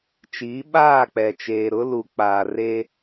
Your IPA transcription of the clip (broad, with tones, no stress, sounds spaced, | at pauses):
t͡ʃ iː˨˦ ɓ aː˦˨ k͡p ɛ˨ t͡ʃ eː˨ ɾ ʊ˦ l u˨ k͡p aː˨ r e˦